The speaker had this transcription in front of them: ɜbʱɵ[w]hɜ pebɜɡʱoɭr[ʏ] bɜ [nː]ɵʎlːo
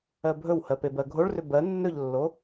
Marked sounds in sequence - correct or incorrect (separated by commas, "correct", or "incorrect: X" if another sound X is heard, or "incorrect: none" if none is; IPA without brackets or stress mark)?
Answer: correct, correct, correct